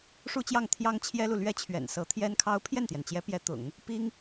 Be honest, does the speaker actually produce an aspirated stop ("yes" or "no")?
yes